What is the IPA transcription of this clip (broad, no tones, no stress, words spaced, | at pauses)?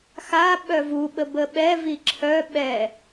xa ɓœvuɓə bəɓɛ viǁʰœ ɓɛ